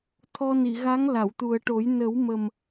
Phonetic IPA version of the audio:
t̪ʰ ɔ˧ n i˨˩˨ ɣ a˧˥ ŋ l a˨˩˨ w t̪ u˨˩ ə̯ ʈ o˨˩˦ j n ə˨˩˦ w m ə˨˩ m

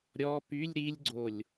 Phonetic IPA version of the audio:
ɾʲ ɔ p y lʲ ɾ i lʲ ɡ͡ǀ o lʲ

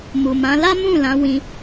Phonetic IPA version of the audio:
m u˨ m ã˨˦ l a˦ m ũ˦˨ l ã˨˦ w ĩ˧

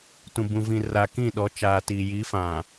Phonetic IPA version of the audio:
t ũ˨ b ũ˨ v ĩ˨ r a˨ k ĩ˦˨ ɗ ɔ˨˦ t͡ʃ aː˨ t iː˨ j i˨˦ f ã˨

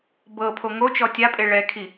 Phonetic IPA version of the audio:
b ɤ pʰ o ŋ o t͡ʃ ɔ tʲ a pʼ e ɭ ɛ kʰ i

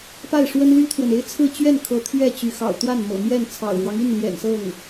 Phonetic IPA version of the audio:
p a˥˩ ɪ̯ ʂ w ə˥ n l y˥ t̪ʰ w ə˨ n e˥ ɪ̯ t͡sʰ ɹ̩˥˧ t͡ɕ ɥ ɛ˥˩ n kʰ ɤ˧˥ t̪ʰ ɥ ɛ˥˩ t͡ɕ y˧˥ x ɑ̰˨˩ ʊ̯ t̪ w a˥˩ n m ɤ̰˨˩ m j ɛ˥˩ n t͡sʰ ɑ̰˨˩ ʊ̯ ɻ w ɑ˦ ŋ i˥˩ n l j ɛ̰˨˩ n s ɤ˥˩ ŋ

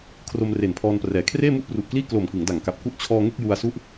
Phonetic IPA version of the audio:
kʰ r o˧ m r e˨˩ n pʰ ɔː˧ n p r ɛː˩˦ kʰ r eː˥˩ m u˥˩ ʔ p r u˨˩ ʔ k l iː˥˩ k l o˨˩ m k ɯ˩˦ ŋ d a˨˩ ŋ k a˨˩ p̚ k u˥˩ ʔ t͡ɕʰ ɔː˧ ŋ e˥˩ k̚ j u˧ a̯ s u˥˩ ʔ

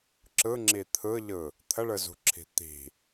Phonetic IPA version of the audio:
ǁ ɯ ŋ͡ǁ i t̪ʰ ɯ ʎ ɯ | t̪ʰ ə ɭ ɯ z ṳ ǁʰ i̤ t̪ i̤

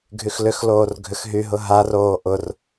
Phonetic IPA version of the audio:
ɡʱ y x l ʏ x l oː r ɡʱ ʏ x ɦ y ɦ ʊ ɦ a r oː ʔ ʊ r

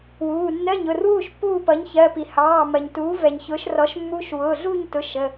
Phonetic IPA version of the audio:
w uː˩˧˩ nː ɜ˧˥˧ ɲ ʊ˩˧˩ r w uː˥˨ ʃ pː uː˥˨ p ʌ˩˥ ɲ ç ɜ˩˧˩ p i˩ h ɑː˩˧˩ m ɜ˩ ɲ t uː˩˥ v ɛ˩ ɲ ç ʊː˩˥ ʃ r ɔ˩˥ ʃ mː u˧˥˧ ʃ w ʊː˩˧˩ ɮ uː˥˨ ɲ t ʊ˩˧˩ ʃ ə˩˧˩

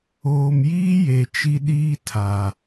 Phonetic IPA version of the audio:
oː˨ m j iː˦ j e˨ t͡ʃ i˦ ɗ iː˦ tʰ a˨

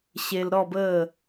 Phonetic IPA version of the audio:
ɕ e˧ l ɾ ɔ˥˧ b əː˥˧

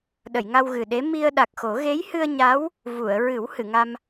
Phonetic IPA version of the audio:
ɗ ə˨˩˨ j ŋ a˧ w ɣ ɨ˨˩ ɗ e˧˥ m i˧ ə̯ ɗ a˨˩ k̚ x o˨˩˦ ɣ e˧˥ j h ɨ˧ ə̯ ɲ a˧˥ w | v u˨˩˨ ə̯ ɹ ɨ˨˩˦ w h ɨ˨˩˨ ŋ a˧ m

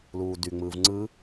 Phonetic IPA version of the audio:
l uː d y ŋ͡m ɯː v ŋ͡ǀ ɯ

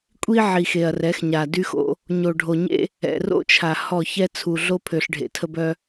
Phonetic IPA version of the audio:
kʷʼ i˦ ʕ i˨ x e˨ ɐ̯ r ɛ˨˦ x ɲ a˨ d y˦ x o̰˦ | ɲ o˨ ɖʱ o˨ ɲ ḛ˦ | ɛ̰˨ r o̰˦ t͡ʃʰ a˨ h ɔ˦˨ ç ɛ˦ t͡sʰ u˨ ɮ o˦ pʰ ø˨ ɬ ɖʱ ḛ˨ tʰ ə˦ b œ˦

